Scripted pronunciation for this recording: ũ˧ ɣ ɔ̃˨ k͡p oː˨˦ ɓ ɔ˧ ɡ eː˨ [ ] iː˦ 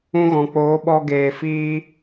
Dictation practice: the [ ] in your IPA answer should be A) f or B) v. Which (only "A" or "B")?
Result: A